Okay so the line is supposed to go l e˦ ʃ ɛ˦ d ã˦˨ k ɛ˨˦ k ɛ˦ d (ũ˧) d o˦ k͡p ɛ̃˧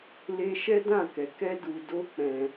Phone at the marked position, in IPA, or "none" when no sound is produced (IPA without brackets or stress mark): u˧